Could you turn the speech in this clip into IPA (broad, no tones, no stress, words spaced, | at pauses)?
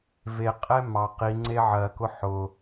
veqʼɛ mɑ qiŋ͡ǀe ʕɜkʊ ħʊ